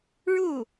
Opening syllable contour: falling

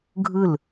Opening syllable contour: falling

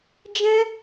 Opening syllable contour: high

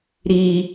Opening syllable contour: high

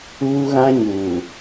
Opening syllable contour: high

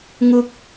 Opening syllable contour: high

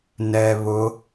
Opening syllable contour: low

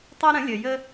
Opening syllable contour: high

